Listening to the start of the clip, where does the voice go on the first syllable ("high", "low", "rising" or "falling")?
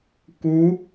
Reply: rising